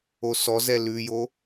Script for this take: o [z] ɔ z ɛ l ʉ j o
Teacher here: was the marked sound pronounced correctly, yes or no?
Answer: no